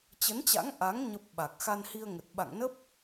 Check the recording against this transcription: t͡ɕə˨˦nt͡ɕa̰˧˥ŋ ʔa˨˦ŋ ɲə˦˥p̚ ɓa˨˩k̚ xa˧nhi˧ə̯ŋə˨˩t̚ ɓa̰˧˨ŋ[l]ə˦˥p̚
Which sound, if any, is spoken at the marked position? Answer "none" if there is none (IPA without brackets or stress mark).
n